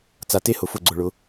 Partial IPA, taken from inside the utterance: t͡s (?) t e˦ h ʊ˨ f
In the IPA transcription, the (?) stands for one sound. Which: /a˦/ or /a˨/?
a˨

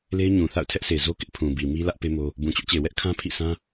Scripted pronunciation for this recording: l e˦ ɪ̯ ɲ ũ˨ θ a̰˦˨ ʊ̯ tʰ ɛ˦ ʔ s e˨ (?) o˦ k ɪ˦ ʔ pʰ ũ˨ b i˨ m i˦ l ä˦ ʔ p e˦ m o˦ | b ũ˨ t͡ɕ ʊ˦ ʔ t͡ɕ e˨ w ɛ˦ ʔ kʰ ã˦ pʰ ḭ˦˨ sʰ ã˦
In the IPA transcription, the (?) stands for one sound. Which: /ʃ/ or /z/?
z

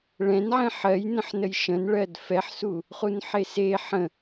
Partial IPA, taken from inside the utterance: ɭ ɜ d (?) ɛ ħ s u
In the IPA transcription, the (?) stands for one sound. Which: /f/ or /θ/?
f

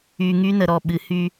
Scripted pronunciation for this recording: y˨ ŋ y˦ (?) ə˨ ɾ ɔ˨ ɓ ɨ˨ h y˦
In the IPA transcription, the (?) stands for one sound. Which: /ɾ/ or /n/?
n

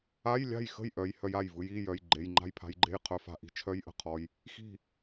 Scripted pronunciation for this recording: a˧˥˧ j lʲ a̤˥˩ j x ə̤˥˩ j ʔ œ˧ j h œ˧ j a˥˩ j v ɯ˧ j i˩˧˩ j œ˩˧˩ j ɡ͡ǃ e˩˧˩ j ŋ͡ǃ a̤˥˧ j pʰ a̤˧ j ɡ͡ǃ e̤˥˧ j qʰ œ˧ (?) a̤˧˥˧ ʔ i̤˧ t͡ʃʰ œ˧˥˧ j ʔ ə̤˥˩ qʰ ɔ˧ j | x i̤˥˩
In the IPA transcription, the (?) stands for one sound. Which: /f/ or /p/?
f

